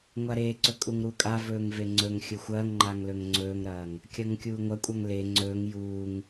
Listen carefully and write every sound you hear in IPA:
ŋʷaɾeːǀɵ kʼuŋɾukʼavɵːŋ veŋ͡ǀɵŋxʲɵ xʷɐːŋŋ͡ǃaŋ lɵŋŋ͡ǀɵːŋɾɐːŋ | kʲɐŋkʲuːŋʷɐkʷʼaŋ le ŋ͡ǀɵːŋ juːŋ

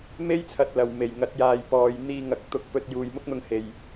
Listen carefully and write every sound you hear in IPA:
me˥jt͡sʰɐ˨t̚lɐ˨˩w me˨˩jŋɐ˨˥t̚jaː˨˧jpɔː˨˧j n̪iː˧ŋɐ˨k̚ t̪ʊ˧k̚ pɵ˧t̚juː˨jmʊ˥k̚n̪ʊ˧ŋ he˨j

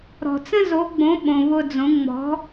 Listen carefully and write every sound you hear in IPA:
ɾɔ̤˨t͡sə̃˦zo˨˦ɡ͡bõ˨˦ ɓõ˨βʊ˧d͡zõ˨˦ ŋ͡mɔ̤˨˦

